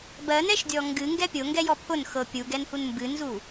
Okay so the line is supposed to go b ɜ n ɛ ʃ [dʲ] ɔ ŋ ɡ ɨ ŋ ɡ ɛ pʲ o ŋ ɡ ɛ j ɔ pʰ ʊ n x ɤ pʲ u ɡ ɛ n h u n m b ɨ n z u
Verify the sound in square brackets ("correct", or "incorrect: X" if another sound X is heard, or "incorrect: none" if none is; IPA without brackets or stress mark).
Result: correct